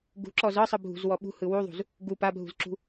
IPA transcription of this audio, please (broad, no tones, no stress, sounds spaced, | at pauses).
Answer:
ɡ ṳ ǁ ɔ z ɤ sˤ ɯ bʱ ṳ z w ɔ ɓ ṳ h ɯ w u ðˤ ṳ z | ɡ u p a bʱ ṳ z ǁ ṳ